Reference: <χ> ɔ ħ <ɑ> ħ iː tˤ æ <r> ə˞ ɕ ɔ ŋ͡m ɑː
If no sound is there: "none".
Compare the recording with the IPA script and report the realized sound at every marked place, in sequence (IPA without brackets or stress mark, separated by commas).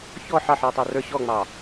ç, ɑ, r